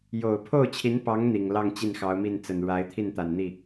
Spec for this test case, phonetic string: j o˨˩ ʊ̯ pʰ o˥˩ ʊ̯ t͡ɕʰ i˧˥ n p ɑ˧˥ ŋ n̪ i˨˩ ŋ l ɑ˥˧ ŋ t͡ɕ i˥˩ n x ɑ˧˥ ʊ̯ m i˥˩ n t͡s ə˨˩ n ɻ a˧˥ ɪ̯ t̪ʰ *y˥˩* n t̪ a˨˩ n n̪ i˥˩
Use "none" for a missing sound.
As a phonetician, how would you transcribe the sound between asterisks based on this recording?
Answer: i˥˩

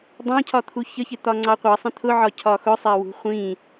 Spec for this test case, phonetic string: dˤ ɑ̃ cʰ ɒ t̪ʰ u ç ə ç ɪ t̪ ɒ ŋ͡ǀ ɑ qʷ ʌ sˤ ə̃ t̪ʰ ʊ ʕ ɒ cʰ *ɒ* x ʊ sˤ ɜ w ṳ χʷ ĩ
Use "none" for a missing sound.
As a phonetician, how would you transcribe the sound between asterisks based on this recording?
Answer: ɒ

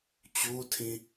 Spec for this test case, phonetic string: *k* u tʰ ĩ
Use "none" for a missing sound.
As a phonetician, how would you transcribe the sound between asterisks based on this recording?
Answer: t͡ɕ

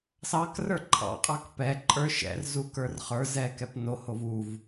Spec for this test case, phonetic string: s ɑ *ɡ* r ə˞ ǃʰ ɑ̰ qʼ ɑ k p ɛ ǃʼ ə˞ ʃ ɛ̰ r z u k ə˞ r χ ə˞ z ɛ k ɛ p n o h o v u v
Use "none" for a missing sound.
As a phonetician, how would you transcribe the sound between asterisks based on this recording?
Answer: k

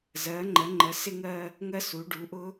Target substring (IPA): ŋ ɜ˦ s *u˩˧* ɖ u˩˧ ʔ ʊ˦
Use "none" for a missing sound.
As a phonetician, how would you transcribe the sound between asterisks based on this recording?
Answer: u˩˧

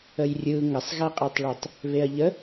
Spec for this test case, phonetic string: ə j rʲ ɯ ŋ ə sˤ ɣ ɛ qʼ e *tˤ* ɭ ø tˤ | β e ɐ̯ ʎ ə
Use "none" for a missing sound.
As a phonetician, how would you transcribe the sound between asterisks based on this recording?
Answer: tˤ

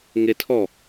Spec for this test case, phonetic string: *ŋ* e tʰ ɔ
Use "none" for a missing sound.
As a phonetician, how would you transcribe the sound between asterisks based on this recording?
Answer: ŋ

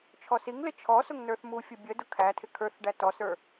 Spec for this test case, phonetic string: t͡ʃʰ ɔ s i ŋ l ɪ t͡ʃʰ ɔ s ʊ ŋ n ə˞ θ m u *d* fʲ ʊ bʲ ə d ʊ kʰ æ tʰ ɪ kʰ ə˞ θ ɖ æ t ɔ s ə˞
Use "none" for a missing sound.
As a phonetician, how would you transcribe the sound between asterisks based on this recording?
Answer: none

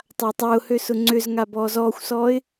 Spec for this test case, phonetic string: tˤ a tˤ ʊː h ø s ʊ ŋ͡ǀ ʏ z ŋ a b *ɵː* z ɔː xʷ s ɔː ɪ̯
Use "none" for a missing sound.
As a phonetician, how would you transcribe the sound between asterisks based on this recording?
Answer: ɔː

